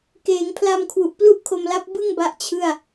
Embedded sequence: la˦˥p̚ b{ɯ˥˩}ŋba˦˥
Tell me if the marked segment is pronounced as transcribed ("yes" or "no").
yes